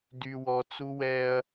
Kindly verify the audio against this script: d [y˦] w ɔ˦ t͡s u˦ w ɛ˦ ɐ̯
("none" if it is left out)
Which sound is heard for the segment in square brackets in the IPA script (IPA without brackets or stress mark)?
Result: y˦